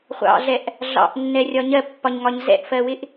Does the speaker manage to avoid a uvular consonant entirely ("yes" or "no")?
no